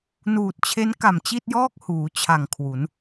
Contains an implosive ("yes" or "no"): no